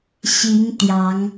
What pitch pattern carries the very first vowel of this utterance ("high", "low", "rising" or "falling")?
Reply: rising